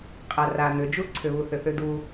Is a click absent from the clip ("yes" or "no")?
no